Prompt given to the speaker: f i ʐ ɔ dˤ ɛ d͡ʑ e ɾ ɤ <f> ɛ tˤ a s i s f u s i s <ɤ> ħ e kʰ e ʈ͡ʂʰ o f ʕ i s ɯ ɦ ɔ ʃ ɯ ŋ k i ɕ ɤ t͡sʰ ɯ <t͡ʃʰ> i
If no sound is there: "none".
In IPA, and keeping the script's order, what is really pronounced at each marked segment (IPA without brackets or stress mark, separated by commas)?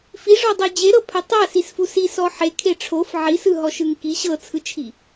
pʰ, ɔ, t͡ʃʰ